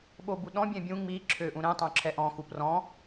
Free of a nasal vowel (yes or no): no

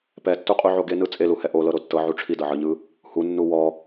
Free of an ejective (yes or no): no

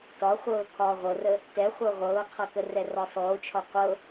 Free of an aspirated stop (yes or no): no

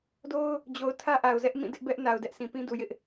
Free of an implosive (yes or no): yes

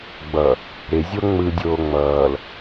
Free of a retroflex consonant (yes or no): yes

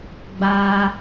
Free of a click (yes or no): yes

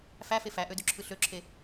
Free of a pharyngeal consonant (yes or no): yes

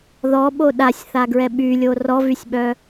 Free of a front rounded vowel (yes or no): no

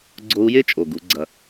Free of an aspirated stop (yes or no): yes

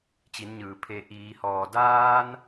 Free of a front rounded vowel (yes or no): yes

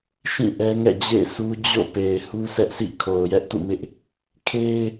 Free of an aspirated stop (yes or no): no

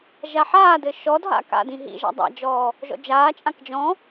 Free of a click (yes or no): yes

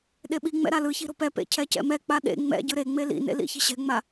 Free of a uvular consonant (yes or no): yes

